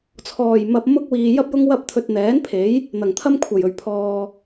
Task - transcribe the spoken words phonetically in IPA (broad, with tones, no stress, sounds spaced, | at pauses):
t͡sʰ ɔː˨˩ j m ɐ˨ p̚ m ʊ˥ k̚ w iː˨ j ɐ˥ p̚ j ʊ˥ ŋ w ɐ˥ p̚ t̪ʰ ɵ˧ t̚ n̪ ɛː˨˥ n pʰ e˨˥ j | n̪ ɐ˨˩ ŋ t̪ʰ ɐ˥ m kʷʰ ɐ˨˩ j ɵ˨˩ ɥ pʰ ɔː˨